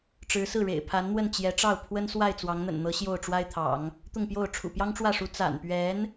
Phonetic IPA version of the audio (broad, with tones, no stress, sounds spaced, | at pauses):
ʈ͡ʂ ɻ̩˧˥ s ɹ̩˥˩ ɻ ḛ˨˩ ɪ̯ pʰ a˧˥ n n̪ w ə˥˩ n t͡ɕ j ɛ˧˥ ʈ͡ʂ ɑ˥˩ ʊ̯ pʰ w ə˥ n s w a˥˩ ɪ̯ t͡s w ɑ˧˥ ŋ n̪ ə̰˨˩ n n̪ ɤ˧˥ ɕ j o˥˩ ʊ̯ ʈ͡ʂ w a˥ ɪ̯ t̪ʰ ɑ̰˨˩˦ ŋ | t̪ ʊ˥˧ ŋ p j o˥˩ ʊ̯ ʈ͡ʂʰ ṵ˨˩ p j ɑ˥ ŋ ʈ͡ʂ w ä˥˩ ʂ u˧˥ t͡s a̰˨˩ n p ɥ ɛ˧˥ n